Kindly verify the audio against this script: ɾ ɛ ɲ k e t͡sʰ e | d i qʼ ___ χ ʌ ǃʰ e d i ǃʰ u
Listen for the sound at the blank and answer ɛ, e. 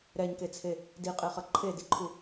e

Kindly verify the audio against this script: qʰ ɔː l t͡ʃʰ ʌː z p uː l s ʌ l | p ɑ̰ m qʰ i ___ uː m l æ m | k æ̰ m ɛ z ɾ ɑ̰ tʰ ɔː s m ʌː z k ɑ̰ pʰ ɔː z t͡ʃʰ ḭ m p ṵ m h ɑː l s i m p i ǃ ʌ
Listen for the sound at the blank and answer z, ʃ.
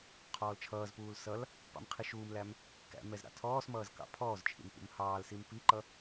ʃ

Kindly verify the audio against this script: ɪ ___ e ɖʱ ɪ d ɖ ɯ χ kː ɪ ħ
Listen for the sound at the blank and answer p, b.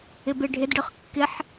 b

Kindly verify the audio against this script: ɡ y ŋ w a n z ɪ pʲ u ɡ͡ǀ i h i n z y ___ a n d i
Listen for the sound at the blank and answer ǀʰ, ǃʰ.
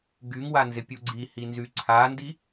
ǀʰ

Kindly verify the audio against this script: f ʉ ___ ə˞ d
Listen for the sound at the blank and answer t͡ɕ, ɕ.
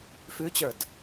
t͡ɕ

